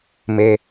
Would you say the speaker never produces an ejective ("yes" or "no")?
yes